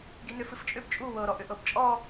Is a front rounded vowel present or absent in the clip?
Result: present